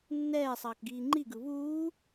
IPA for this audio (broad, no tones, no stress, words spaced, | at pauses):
nːɛːsˤʌːkɡiː ŋ͡ǃiɡɯ βuː